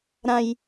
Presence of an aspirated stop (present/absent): absent